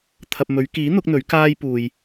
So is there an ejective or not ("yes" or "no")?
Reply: no